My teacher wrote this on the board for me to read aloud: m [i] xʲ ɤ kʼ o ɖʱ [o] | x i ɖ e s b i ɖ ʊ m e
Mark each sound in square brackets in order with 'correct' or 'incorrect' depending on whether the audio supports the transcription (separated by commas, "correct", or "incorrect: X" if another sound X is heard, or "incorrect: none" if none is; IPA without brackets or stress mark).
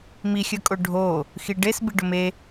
correct, correct